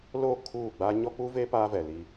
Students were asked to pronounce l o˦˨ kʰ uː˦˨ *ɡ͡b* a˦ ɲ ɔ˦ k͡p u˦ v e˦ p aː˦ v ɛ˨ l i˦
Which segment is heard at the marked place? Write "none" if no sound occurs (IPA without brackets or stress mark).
ɡ͡b